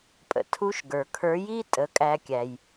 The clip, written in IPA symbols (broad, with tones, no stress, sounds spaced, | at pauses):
pʼ ə̰˩ tʰ u˧˥ ʃ ɡ ə˞˩ kʰ ə˞˧˥ j i˥ tʼ ə˩˧ kʼ æ˧ kʲ æ˩ j